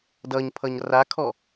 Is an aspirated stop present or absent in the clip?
present